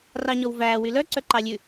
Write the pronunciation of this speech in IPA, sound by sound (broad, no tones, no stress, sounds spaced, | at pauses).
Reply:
r ɑ ɲ ɔ w v æː w y l œ ǀ œ ǃ ɑ lʲ ʉ